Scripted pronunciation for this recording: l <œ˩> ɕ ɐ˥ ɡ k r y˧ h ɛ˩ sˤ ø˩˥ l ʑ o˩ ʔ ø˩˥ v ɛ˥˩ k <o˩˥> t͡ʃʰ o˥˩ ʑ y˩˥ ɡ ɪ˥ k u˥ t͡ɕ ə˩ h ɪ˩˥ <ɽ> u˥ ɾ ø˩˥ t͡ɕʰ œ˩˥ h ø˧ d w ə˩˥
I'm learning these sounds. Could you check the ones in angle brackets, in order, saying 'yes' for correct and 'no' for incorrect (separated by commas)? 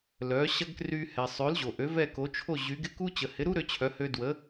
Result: no, yes, no